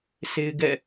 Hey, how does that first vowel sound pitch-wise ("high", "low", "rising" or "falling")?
high